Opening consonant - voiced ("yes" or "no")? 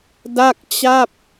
yes